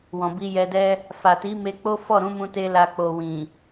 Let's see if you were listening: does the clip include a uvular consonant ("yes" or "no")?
no